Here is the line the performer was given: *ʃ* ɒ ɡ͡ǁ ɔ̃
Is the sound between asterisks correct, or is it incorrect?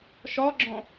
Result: correct